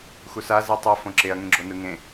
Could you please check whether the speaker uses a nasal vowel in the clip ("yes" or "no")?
yes